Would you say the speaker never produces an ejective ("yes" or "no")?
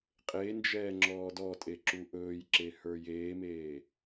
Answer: no